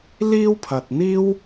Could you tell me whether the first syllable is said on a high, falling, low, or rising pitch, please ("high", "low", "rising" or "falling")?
high